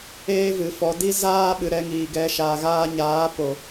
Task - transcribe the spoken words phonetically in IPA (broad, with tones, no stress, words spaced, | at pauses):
eː˦vɨ˨fɔ˨˦ di˦zaː˦ɓɨ˨ ɾɛ˧ ŋiː˨ɡɛ˨˦ʃaː˨ ɣaː˧ɲaː˨˦po˨